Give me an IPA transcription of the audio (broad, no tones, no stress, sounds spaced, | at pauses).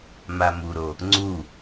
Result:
m a m u ɾ o | ŋ͡ǀ u